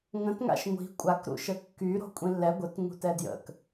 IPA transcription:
ŋ ə̃ t ŋ a̰ ʃ ŋʷ i̤ kʷʼ a k ɾ ṵ ʃ ə kː y ɾ o̤ kʷʼ ĩ lː ɛ ɡʷ ə t ŋ ṳ t ɛ d j ə̰ k

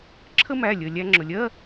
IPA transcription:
ǁʰ ə˥ m æ˩˧˩ lʲ ə˩ lʲ æ˧ ŋ͡ǁ ʊ˩ lʲ ɜ˧˥˧

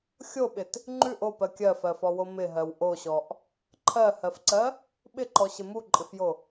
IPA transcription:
xʲ o ɓ ɪ t | ŋ͡ǃ ʉ ʔ o p ɜ kʲ ɜ f ɜ f ɔ w o m ɪ ɦ ɜ w ʔ o ɕ ɔ ʔ | ǃʰ ɜ h ɜ f ǀ ɜ | ɓ ɪ ǃ ɔ ɕ ɪ m u ǃʼ ɪ f j o

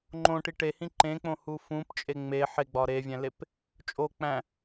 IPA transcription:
ŋ͡ǃ õ ʈ i ʈ e h ĩ ǃ ẽ k͡p õ h u f ũ p t͡ʃʼ e ŋ͡m e ħ e ɡ͡b ɒ ɾ e vʲ æ̃ l e p | t͡ʃʼ o k͡p æ̃

